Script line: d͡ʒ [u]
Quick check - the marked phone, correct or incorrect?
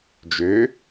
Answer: incorrect